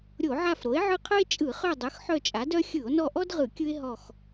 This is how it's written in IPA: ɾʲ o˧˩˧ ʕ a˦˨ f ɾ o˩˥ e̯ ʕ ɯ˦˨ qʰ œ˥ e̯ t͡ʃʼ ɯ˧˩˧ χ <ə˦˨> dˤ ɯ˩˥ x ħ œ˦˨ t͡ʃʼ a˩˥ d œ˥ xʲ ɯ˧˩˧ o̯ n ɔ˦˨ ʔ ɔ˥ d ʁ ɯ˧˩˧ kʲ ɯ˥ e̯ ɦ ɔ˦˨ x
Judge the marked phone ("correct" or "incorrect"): incorrect